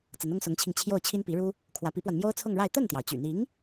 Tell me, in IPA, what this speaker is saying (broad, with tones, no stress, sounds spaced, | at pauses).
t͡s ə˧˥ n ʊ˥ ŋ s ʊ˧˥ ŋ t͡ɕʰ i˧ ŋ t͡ɕʰ j o˥˩ ʊ̯ t͡ɕʰ i˥ n p i˧˥ ɻ u˥ | kʰ w ä˧˥ p i˧˥ p w a˧ n m j o˥ ʊ̯ t͡sʰ ʊ˥˧ ŋ ɻ a˥˧ ɪ̯ t̪ ə˥˩ n t̪ j ɑ˩ ʊ̯ t͡ɕ y̰˨˩ n̪ i˧˥ ŋ